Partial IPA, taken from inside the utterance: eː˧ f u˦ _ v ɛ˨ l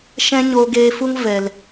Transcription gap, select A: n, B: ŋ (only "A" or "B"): B